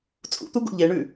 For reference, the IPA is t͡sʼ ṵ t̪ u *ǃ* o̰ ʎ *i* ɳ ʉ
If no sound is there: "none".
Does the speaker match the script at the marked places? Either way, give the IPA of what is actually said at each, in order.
ɡ, e

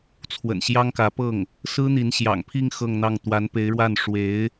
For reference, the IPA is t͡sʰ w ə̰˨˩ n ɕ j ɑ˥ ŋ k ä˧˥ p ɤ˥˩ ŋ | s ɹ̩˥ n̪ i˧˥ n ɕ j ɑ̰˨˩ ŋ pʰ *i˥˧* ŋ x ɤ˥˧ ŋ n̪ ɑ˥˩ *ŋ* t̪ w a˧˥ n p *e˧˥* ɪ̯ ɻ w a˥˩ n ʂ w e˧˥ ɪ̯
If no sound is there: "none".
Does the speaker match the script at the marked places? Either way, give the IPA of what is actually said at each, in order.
i˥˧, ŋ, e˧˥

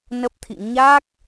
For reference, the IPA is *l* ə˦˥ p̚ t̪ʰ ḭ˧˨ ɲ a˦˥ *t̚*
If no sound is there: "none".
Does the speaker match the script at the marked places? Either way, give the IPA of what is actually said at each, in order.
n, k̚

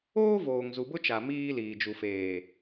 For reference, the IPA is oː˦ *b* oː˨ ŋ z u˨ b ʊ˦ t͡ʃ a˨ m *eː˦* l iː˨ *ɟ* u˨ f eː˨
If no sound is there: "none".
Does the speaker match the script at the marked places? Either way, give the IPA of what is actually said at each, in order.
v, iː˦, d͡ʒ

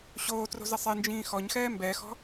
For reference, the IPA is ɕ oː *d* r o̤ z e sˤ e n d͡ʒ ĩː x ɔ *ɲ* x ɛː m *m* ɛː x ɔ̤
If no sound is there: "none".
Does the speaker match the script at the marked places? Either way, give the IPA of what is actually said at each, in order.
t, ɲ, b

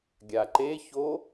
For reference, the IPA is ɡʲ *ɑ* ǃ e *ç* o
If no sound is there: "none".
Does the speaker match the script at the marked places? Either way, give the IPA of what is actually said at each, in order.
a, ç

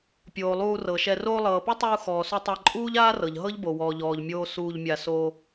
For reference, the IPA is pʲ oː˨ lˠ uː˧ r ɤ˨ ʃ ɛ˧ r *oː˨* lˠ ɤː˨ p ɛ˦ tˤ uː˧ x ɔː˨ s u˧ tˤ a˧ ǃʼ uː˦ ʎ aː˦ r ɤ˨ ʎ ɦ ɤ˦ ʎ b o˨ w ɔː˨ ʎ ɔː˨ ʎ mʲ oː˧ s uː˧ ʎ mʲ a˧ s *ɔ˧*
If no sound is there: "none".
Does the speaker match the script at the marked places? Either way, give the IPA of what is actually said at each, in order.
oː˧, o˧

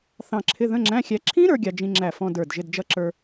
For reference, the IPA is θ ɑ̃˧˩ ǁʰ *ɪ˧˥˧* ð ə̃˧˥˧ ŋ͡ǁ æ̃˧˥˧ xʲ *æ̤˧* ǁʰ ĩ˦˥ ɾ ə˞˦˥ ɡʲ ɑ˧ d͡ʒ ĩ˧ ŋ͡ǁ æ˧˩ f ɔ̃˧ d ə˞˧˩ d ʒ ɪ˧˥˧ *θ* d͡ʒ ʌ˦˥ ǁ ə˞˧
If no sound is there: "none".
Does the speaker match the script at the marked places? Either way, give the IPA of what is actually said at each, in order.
ɪ˧˥˧, æ˧, d

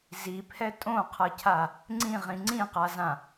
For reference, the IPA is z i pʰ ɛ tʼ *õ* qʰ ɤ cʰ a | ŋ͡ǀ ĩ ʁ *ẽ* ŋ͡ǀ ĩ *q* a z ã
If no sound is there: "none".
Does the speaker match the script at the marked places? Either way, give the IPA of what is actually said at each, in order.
õ, ĩ, q

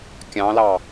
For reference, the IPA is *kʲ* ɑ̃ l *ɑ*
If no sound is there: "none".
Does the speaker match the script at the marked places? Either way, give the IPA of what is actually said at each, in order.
kʲ, ɑ

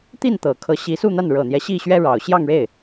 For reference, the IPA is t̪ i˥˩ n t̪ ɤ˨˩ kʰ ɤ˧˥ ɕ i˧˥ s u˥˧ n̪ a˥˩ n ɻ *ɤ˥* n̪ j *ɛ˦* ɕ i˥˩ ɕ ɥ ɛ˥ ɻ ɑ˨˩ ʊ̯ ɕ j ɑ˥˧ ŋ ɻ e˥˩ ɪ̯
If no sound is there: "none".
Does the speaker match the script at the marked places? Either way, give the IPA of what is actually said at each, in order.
ɤ˨˩, ɛ˦

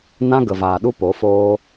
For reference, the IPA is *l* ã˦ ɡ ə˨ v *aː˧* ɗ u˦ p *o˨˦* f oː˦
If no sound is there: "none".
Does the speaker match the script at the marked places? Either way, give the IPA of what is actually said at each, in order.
n, aː˨, o˨˦

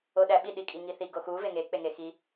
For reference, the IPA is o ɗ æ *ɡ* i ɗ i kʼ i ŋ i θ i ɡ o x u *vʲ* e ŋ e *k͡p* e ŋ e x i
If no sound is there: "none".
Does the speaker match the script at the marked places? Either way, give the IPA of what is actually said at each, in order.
ɓ, v, k͡p

